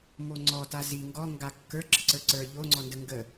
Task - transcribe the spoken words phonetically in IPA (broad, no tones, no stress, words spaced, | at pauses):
moŋ͡ǀɔta zi ŋɡɔ ŋɡakːə˞ ɡ͡ǁəǀə˞ǀə˞ ʎoŋ͡ǀɔndə ŋɡə